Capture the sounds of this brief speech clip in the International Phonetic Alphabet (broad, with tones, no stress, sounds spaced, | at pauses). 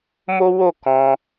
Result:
m o˦ w o˦˨ k ɔ̃˧